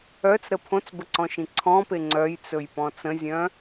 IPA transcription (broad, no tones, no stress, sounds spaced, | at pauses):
œ t͡s ɾ ə pʰ õ t͡s b ə ǀ ɔ̃ ʃ ĩ ǀʰ ɔ̃ p e ŋ͡ǀ œ j t͡s ɵ j p ɔ̃ t͡s ə̃ zʲ œ̃